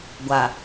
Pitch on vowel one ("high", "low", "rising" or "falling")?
low